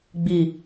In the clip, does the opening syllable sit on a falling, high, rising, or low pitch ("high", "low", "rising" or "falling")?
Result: low